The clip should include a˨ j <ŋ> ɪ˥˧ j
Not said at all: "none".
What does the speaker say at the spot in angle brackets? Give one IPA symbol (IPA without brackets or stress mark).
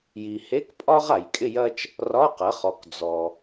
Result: kʼ